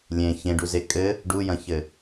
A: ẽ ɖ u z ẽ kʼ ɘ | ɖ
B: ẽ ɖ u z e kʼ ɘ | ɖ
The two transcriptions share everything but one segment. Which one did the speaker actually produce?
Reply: B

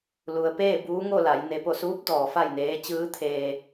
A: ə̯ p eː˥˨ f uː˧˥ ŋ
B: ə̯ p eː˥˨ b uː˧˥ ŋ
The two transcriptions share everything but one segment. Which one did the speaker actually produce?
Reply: B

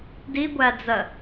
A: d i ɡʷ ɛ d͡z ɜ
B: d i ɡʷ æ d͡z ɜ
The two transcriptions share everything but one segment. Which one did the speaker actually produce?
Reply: B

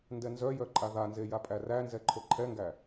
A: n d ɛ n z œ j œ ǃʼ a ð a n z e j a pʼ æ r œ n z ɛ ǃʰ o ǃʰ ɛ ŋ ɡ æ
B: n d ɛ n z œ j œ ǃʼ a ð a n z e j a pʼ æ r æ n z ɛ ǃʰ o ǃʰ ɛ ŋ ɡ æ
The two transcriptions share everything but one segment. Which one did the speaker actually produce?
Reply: B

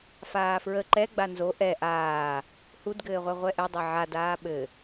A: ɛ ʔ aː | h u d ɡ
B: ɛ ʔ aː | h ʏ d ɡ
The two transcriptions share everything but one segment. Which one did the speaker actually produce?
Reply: A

